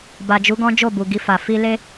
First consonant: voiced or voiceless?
voiced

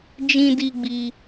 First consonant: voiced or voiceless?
voiced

